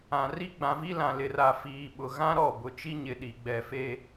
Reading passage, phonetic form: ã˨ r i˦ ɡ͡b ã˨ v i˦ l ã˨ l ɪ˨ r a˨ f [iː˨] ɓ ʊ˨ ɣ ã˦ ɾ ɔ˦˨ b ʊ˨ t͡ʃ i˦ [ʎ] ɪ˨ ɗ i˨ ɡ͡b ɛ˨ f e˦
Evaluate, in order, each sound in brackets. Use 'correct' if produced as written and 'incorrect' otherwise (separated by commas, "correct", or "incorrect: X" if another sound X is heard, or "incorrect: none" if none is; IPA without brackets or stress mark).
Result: correct, incorrect: ɲ